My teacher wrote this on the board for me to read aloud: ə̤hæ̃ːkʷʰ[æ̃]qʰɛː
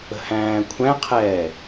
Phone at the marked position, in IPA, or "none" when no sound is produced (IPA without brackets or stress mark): æ̃